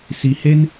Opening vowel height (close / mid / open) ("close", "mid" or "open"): close